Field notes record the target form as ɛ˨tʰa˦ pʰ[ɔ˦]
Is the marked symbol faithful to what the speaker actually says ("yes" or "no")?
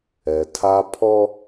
yes